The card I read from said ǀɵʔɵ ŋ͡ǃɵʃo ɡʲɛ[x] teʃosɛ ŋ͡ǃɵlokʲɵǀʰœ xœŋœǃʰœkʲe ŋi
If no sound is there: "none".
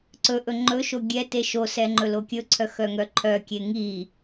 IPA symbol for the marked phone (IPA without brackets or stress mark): none